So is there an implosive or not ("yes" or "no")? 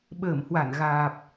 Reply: yes